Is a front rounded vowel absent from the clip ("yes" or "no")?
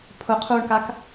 yes